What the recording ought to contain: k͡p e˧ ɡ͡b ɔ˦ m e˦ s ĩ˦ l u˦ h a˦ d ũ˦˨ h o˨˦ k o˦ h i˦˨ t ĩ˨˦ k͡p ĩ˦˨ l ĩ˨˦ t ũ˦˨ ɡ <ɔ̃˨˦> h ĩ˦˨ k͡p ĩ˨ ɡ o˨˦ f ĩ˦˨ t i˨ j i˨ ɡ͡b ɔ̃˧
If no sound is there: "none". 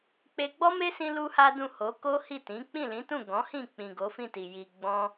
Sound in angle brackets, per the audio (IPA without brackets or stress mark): ɔ̃˨˦